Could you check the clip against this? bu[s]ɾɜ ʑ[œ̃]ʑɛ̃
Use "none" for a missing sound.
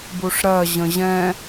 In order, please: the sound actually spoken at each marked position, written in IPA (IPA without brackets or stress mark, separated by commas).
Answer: ʂ, ə̃